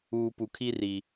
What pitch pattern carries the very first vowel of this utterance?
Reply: low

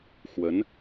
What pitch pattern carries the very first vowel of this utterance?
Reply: rising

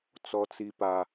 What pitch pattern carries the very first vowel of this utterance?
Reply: high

